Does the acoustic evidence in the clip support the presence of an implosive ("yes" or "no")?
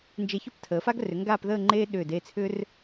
yes